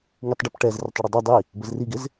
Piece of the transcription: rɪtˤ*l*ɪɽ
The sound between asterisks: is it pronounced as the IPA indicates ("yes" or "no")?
no